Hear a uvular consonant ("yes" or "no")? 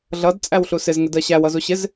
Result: no